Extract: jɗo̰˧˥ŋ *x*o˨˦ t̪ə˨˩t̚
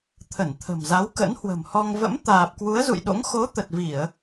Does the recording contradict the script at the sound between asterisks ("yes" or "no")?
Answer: no